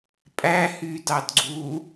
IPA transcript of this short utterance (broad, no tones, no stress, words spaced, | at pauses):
pʼæhydɑdɡ͡ǀu